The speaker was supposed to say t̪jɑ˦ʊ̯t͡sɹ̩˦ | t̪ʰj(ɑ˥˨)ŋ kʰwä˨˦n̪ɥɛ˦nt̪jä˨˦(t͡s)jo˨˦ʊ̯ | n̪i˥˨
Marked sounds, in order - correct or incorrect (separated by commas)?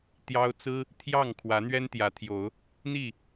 correct, incorrect